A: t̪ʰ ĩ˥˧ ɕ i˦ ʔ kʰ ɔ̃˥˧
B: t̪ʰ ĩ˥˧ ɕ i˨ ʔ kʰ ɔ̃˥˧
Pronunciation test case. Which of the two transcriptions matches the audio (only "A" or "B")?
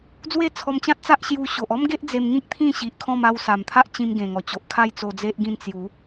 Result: B